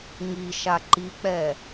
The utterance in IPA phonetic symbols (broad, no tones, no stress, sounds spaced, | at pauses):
ŋ i ʃ a ǃ i k͡p ɛ